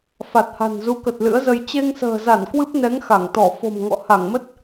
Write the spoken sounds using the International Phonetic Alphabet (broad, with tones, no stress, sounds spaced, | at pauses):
f a˨˩ t̚ h a̤˨˩ n z u˨˦ k ə˨˩ t̚ l ɨ̰˧˥ ə̯ z ə˧ j t͡ɕ e˧ ŋ s ə̤ː˨˩ z a˧˩ n k w ɨ˦˥ p̚ n ɛ˨˦ ŋ x a˧˩ ŋ t̪ ɔ˧˩ f o̤˨˩ m ŋ ɔ̰˧˨ h a˧˩ ŋ m ə˦˥ t̚